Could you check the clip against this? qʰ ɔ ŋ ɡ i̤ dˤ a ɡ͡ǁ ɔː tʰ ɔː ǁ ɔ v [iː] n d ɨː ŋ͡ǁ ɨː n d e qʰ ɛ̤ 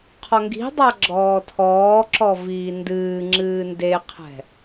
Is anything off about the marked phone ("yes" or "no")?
no